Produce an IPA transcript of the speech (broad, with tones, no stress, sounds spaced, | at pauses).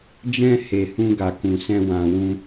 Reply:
d͡ʒ ɛ̃˧ h e˨ h ũ˧ ɡ a˨ k ũ˨ s ɛ̃˧ w ã˨ w ũ˧